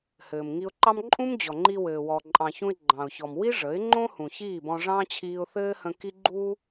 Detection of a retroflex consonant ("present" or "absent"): present